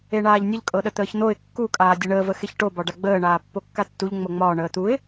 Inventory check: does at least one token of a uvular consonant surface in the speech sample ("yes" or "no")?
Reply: no